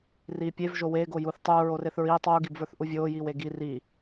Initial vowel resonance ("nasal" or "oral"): oral